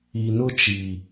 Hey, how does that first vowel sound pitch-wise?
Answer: low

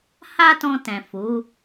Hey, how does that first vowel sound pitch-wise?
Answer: high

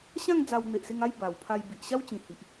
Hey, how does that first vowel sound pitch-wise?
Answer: falling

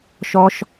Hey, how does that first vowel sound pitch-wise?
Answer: high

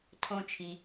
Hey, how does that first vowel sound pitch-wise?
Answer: low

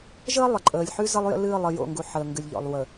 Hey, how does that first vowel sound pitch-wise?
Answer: high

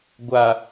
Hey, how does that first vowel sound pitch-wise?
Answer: low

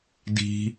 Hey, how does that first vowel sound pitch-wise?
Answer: low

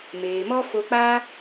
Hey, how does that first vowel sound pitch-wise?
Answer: low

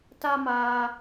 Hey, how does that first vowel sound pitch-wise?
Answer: high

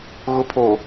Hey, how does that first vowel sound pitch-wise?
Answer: rising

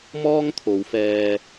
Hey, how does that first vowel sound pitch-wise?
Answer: high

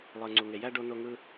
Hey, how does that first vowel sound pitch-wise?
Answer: low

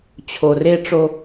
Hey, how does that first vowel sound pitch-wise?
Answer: low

